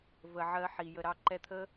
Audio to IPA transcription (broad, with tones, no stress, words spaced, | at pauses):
və˨ ʕɜ˧ħi˨ jə˨ɾɑ˧ǃɛ˧t̪ʰə˦